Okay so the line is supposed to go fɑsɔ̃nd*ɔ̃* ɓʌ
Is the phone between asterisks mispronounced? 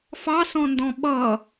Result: no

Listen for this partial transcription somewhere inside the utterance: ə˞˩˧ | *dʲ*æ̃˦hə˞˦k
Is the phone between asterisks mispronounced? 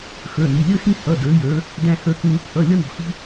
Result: yes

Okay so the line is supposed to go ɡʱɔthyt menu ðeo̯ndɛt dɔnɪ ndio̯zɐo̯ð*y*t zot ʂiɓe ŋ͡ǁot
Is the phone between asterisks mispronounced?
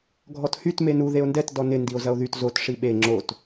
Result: no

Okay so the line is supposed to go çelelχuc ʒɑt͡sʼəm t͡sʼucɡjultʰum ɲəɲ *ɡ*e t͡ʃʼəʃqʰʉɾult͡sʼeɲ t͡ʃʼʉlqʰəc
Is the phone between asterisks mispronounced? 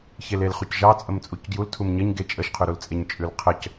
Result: no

